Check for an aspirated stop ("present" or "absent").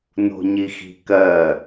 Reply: absent